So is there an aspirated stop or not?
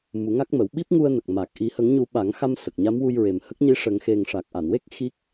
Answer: no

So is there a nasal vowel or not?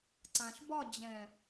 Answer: yes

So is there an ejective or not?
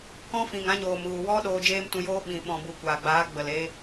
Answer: no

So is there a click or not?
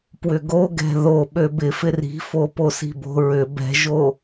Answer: no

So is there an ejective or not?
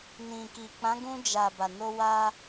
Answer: no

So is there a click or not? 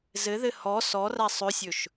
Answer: no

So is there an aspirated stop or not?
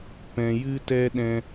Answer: no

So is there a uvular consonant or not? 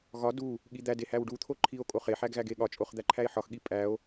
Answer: yes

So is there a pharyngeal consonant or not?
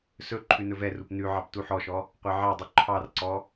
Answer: yes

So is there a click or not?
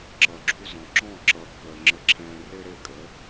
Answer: yes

